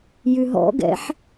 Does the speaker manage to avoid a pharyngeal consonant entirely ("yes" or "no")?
no